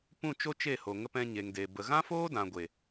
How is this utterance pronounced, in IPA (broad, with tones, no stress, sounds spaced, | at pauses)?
p ũ˦˨ t͡ʃ o˦ t͡ʃ e˦˨ h o˨ ŋ ə˧ p ɛ̃˧ ɲ e˨ ŋ d e˨ b ə˨ ɣ ã˦ f oː˦ d ã˨ ɡʷ e˨